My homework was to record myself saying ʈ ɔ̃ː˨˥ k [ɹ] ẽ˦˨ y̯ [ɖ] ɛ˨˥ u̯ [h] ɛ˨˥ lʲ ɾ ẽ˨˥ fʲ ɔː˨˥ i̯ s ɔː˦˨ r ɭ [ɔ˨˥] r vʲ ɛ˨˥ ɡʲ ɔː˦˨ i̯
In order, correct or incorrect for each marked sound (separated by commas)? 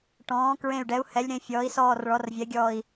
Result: correct, correct, correct, correct